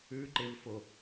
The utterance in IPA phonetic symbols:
ʉ ǃ e v f o

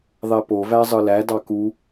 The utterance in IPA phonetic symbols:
ðˤ e p o v æ zˤ ɯ l æ d ɑ k u

